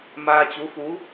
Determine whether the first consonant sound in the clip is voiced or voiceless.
voiced